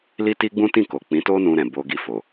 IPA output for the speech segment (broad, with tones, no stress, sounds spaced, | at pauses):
l i˦ t i˦ ɡ͡b ũ˦ t ĩ˦˨ k o˨ k͡p ĩ˨˦ t o˦ n ũ˧ ɾ ɛ̃˨ b o˧ ɡ i˧ f o˨